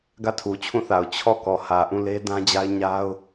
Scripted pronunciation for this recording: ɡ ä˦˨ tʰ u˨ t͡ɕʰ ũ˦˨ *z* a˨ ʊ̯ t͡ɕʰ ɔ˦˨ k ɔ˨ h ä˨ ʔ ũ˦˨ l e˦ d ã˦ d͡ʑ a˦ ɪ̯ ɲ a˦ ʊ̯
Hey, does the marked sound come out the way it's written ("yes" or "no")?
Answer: no